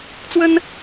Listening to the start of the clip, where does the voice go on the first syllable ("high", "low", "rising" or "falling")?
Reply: high